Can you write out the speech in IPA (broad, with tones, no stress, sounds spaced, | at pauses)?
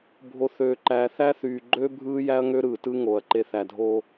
bʱ o˨ θ øː˨ ǃ æː˨ θ æ˦ θ yː˨ ɡ͡ǃ øː˦ bʱ ɯː˦ j æ˦ ɐ̯ ŋ ø˦ ɾ ɯː˨ t ɯ˦ ŋ o˨ ɐ̯ ǃ e˨ θ æ˨ dʱ o˦